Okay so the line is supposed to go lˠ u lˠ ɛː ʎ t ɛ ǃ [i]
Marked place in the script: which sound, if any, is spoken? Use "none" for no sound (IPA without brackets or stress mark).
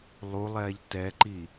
i